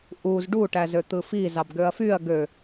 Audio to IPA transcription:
ʔ u z ɖ u ʈ æ z ø t̪ ɯ f i z ɑ b ɡ ø ɐ̯ f y ɐ̯ ɡ ø

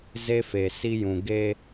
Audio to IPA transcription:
z e˦ f e˨ s i˦ j ũ˨ ɡ e˦

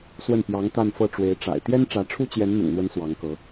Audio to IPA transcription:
s w ə˥˩ n p j ɑ˧˥ ŋ t̪ a˥˧ n f ɤ˥˩ ʈ͡ʂ w e˧˥ ɪ̯ ʈ͡ʂ a̰˨˩ ɪ̯ t̪ j ɛ˥ n ʈ͡ʂ ä˧˥ ʈ͡ʂʰ u˥ t͡ɕ j ɛ˧˥ n n̪ ʊ̰˨˩ ŋ n̪ w ə˧˥ n s w ɑ˧˥ ŋ k ɤ˧˥

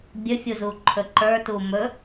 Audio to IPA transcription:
bʲ ɵ fʲ u z u ǃʰ ɵ ǃ ə˞ t u m ɵ

